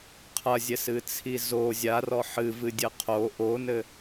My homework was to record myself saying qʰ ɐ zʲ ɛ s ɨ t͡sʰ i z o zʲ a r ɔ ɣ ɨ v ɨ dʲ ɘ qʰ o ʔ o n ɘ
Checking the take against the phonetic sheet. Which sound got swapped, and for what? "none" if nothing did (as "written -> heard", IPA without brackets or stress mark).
ɣ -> ħ